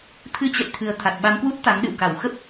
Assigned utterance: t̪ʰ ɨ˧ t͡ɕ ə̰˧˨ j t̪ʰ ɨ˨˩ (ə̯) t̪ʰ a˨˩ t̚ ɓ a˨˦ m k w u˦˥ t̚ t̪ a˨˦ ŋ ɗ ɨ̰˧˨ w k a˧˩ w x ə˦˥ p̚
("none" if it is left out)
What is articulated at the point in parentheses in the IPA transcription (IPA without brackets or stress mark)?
ə̯